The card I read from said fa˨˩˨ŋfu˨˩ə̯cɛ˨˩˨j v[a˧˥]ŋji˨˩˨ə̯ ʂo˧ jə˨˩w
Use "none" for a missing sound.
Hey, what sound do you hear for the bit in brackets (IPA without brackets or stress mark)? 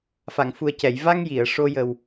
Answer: a˧